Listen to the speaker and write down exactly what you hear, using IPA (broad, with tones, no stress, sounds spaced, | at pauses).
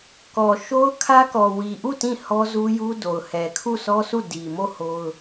k ɔ˨ ʃ o˦ ʊ̯ kʰ ä˦ k ɔ˨ w i˨ ʔ u˦˨ t ĩ˦˨ h ɔ˦ z u˦ j u˦ d o˨ ʊ̯ h ɛ˨ kʰ u˦˨ sʰ ɔ˦ s u˦˨ d i˨ m o˦˨ h o˦ ʊ̯